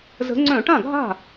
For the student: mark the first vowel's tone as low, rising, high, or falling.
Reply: rising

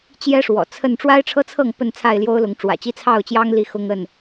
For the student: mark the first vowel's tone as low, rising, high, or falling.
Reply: high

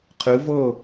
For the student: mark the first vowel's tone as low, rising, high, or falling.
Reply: rising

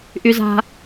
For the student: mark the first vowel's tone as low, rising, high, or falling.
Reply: low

